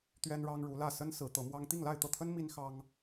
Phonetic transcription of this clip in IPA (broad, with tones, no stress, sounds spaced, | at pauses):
t̪ ɥ ɛ˥ n ɻ ɑ˥ ŋ ɻ u˧˥ l ä˥˩ s ə˥ n s ɹ̩˧˥ t̪ ɤ˧˥ m w ɑ˥ ŋ t̪ i˥˧ ŋ l a˥˧ ɪ̯ t̪ ɤ˥˩ t̪ʰ ə˥ n m i˥ n x ɑ˥ ŋ